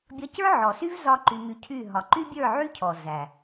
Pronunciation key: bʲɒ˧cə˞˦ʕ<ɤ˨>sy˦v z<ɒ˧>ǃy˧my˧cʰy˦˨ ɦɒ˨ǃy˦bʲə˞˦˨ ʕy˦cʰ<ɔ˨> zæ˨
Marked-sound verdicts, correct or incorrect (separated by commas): incorrect, incorrect, correct